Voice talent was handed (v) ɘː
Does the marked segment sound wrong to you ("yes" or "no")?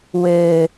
yes